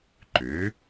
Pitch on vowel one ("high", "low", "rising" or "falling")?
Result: rising